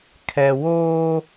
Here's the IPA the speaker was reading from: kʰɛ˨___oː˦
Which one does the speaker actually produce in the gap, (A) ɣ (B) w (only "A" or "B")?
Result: B